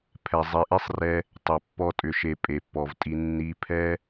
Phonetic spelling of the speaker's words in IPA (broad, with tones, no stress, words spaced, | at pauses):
pʰɛ˨zˤi˨ʔi˦sˤrɛ˧ | tˤʏ˨pːɔ˧ tʼʏ˨ʃe˨ pʼe˨pːɔ˨vtʼi˧ nːi˧pʰɛ˦